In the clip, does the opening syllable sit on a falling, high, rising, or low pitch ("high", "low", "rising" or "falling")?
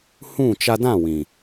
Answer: falling